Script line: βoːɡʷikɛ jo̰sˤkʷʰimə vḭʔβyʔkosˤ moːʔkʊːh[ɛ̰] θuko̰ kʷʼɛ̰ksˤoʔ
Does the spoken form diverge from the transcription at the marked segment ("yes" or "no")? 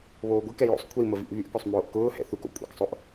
no